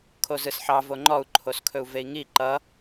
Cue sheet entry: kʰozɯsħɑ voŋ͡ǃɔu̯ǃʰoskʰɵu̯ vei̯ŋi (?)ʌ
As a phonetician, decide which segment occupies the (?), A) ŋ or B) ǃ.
B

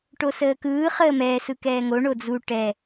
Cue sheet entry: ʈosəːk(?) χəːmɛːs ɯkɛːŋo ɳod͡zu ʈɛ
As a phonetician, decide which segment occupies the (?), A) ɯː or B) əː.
A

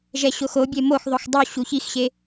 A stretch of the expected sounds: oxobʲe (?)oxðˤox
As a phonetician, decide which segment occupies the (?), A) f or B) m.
B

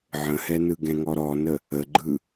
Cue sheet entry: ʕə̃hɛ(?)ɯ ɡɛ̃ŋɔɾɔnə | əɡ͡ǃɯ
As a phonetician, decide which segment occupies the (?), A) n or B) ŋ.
A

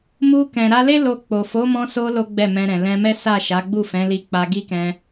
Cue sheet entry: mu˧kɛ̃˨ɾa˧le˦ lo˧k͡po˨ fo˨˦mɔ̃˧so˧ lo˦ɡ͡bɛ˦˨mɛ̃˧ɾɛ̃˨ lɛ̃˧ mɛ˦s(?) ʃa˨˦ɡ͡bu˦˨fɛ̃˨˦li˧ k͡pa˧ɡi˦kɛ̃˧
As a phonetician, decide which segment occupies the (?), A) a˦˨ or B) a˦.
A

